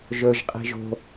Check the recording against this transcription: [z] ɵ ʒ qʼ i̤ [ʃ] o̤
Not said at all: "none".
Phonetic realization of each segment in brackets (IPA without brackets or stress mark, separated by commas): ʒ, ʒ